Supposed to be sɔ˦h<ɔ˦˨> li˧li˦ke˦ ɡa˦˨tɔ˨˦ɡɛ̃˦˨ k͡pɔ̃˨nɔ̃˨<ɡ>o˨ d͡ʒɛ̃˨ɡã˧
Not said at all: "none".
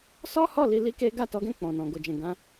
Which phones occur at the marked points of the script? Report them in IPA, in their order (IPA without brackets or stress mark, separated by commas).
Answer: ɔ˦˨, ɡ